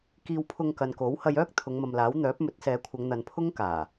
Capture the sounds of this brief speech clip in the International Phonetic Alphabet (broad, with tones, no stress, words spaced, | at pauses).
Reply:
kiː˧wpʰʊ˧ŋkɐ˨n ko˨˥w hɐ˧jœː˥k̚ t̪ʰʊ˨˧ŋmɐ˨mlaː˨˥w n̪œː˨˥p̚ mɵ˨˥t̚sɛː˨˧kʷʰɐ˨˧ŋn̪ɐ˨n pʰʊ˥ŋkaː˨˩